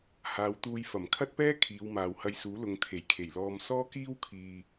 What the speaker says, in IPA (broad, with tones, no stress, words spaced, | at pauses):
haː˨˧wt̪uː˧jfɐ˨˩m kʰɐ˥t̚pɛː˥ kʰiː˨˧wmaː˨whɐ˧jsuː˨˥ lʊ˨ŋ t̪ʰe˨˩jkʰe˨˩jlɔː˧m sɔː˥kiː˥wkʰiː˨